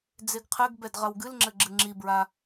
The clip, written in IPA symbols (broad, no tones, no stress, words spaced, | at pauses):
d͡zeɡqʰɘɡ bɛdʁɐwɡɨl ŋ͡ǁɘɡ͡ǁɨŋ͡ǁibɹa